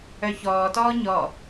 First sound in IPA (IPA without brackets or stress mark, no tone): œ